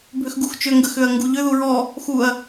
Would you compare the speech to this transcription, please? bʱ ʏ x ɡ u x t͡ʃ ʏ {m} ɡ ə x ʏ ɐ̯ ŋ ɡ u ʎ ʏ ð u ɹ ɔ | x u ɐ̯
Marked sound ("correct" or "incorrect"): incorrect